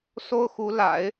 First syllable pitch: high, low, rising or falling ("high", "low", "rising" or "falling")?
high